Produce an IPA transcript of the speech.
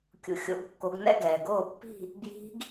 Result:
kʲṵ˨xʲo̰˨˩˦ɡkːo˨˦ɡnɛ̰˥˧ ɡɛː˨ɡoː˥˩pːi̤˥˧ | bji̤˦˥ɡ

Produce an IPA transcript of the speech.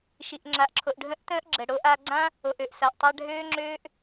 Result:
ʃi˨ʔŋ͡ǁa˨ʔǁʰo˨ʔ ɖʱə̃˦ʔtə̃ː˦ʔ ɡ͡ǁə˨ ɽo˦ʔa˦ ɡ͡ǀã˦ | o˨ʔø˨ʔsa˨ʔ tˤa˧ ɖʱøː˦ŋ͡ǁøː˦ʔ

